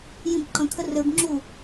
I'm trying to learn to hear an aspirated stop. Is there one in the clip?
yes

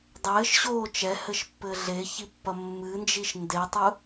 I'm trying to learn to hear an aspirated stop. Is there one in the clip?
no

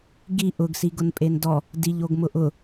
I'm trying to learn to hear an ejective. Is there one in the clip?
yes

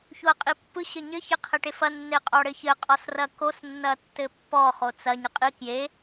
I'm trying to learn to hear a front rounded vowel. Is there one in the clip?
no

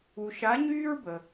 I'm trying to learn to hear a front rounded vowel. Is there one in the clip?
yes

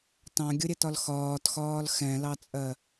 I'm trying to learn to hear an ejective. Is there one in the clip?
yes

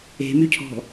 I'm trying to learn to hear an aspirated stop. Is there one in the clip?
yes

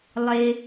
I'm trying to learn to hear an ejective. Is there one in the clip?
no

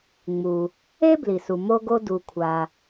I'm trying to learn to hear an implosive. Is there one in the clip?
no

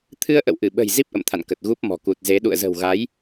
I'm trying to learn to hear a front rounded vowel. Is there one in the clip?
no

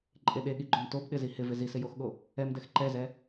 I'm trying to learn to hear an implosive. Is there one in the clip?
yes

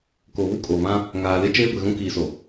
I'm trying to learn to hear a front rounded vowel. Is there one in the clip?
no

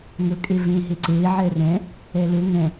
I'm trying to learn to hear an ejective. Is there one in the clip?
yes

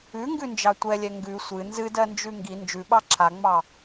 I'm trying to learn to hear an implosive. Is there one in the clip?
yes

